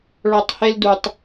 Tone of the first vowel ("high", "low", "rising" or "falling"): low